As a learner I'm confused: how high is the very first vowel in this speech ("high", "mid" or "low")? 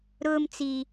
high